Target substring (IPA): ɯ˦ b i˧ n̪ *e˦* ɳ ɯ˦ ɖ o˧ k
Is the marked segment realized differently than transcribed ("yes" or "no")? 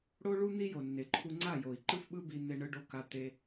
no